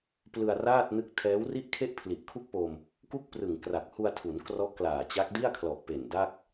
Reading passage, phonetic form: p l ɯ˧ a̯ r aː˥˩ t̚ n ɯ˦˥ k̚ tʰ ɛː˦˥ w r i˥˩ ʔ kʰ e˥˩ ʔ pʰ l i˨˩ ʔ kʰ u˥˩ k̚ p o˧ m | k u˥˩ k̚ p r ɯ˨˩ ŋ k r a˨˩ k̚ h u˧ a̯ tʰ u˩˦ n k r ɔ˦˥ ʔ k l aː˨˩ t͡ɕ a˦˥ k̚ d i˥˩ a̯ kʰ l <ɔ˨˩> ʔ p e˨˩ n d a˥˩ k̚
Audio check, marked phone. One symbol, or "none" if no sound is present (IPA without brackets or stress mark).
ɔ˨˩